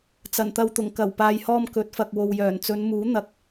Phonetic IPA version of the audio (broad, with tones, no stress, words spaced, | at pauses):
t͡sɐ˨˩nt̪ɐ˧wt̪ʊ˨˩ŋ kɐ˨˩wpaː˨jhɔː˧m kɵ˨˥t̚fɐ˨k̚ wo˨wjœː˨˩n t͡sɵ˨˧nmuː˨˥ n̪ɐ˧k̚